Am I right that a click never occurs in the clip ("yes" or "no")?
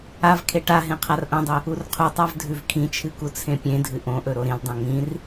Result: yes